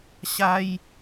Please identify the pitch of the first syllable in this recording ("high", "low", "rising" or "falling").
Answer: high